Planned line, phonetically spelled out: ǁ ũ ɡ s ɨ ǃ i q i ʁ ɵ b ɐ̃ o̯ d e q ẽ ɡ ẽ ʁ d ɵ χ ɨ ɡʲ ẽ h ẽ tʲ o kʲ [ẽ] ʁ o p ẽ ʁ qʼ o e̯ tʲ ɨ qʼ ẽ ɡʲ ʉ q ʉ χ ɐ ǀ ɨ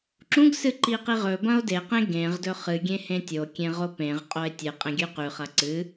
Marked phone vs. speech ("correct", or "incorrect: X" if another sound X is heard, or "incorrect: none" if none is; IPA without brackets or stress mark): correct